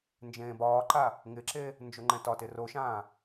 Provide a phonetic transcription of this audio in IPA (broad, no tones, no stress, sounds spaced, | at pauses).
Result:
n d͡ʒ ẽː b ɒː ǃ a | ŋ ɪ ǁ e | n d͡ʒ o ŋ͡ǃ ɛ̃ t ɒ t ɪ r o ʃ ãː